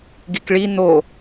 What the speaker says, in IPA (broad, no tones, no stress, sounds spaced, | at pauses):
ɡ i k ɭ i n̪ o